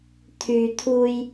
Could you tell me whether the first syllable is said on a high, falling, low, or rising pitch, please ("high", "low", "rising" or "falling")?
low